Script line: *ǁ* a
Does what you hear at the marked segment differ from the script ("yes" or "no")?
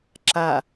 no